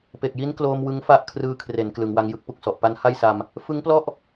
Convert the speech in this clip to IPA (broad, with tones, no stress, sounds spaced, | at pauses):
p e˨˩ k̚ j i˦˥ n k l oː˧ m w ɯ˦˥ ŋ f a˦˥ ʔ kʰ r ɯː˦˥ kʰ r e˩˦ n k l ɯ˩˦ ŋ w a˧ ŋ j ɯ˦˥ k̚ p u˨˩ k̚ s ɔ˨˩ ʔ p a˦˥ n h a˥˩ j s a˧ m | f ɯ˦˥ ŋ p l ɔ˥˩ ʔ